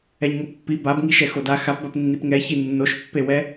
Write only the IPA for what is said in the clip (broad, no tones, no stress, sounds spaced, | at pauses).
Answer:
ɛ ɲ ŋ o pː i b a b ŋ i ʃ ɛ x o d a x a p b a p nː i p ŋ ɛ ç i nː o ʃ pː e w ɛ